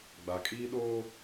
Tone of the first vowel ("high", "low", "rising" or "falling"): low